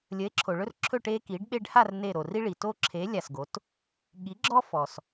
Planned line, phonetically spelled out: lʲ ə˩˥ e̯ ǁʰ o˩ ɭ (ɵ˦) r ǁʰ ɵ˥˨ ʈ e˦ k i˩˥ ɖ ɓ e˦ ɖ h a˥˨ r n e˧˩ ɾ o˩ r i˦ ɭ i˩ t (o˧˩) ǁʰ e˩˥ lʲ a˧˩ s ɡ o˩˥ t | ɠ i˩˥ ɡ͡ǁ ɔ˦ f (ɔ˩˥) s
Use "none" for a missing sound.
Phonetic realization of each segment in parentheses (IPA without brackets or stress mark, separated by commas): ɵ˦, o˦, ɔ˩